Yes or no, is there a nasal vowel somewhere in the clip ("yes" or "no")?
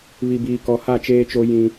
yes